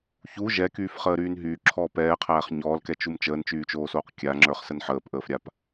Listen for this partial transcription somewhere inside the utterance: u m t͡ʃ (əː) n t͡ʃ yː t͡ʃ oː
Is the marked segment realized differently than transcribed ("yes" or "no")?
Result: no